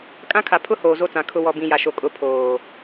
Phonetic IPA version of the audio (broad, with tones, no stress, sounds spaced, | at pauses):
kʼ ã˦ kʰ a˨ pʰ ʊ˦ h oː˨ z o˦˨ t͡s ã˨ kʰ ʊ˨ w ɔ˨ b ĩ˨ j a˨ ʃ o˨ kʼ ʊ˨ pʰ oː˨